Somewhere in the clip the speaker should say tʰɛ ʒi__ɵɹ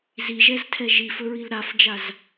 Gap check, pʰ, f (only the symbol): f